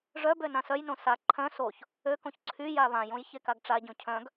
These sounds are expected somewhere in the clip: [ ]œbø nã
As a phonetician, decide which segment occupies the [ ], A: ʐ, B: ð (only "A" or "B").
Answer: A